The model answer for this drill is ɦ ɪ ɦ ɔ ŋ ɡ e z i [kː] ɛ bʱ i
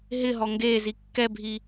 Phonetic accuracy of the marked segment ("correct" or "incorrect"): correct